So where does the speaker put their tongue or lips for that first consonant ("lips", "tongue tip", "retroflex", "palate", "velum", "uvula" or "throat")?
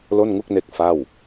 tongue tip